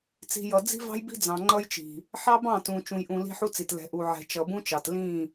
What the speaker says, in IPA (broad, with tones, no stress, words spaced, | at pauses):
t͡si̤˨jʌ˨ d͡zi̤˦vɑ̤˦jbi̤˦ d͡zɑ̃˨ ŋ͡ǃʌ˦jt͡ʃi̤˨ | ħɑ˦bɑ̃˦˨tũ˨ t͡ʃũ˨jʔũ˨ li̤˦ħu˦t͡si˨t lɛ̤˨ʔu˨ ʕɛ̤˨ t͡ʃʌ˨bũ˦t͡ʃɑ˨t lĩ˦˨